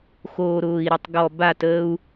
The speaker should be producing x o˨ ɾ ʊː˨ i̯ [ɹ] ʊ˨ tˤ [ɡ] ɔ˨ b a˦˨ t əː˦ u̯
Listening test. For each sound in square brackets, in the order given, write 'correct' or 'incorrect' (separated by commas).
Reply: incorrect, correct